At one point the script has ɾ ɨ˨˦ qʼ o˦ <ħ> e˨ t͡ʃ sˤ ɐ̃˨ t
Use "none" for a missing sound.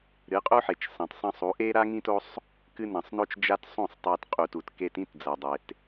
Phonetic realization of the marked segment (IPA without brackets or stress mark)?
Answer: ħ